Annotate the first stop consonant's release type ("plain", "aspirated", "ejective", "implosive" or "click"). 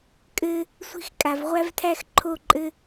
ejective